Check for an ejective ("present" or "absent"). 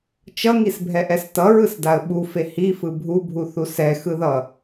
absent